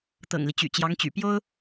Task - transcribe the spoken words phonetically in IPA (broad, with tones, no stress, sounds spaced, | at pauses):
t̪ ɤ̰˨˩ ŋ l i˦ t͡ɕ y̰˨˩ t͡ɕ j ɑ˧˥ ŋ t͡ɕ y̰˨˩ p j o˥ ʊ̯